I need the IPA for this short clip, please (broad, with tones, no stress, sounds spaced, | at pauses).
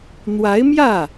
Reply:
n̪ w a˧˥ ɪ̯ m j ä˥˩